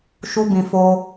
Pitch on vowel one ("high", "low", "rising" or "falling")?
high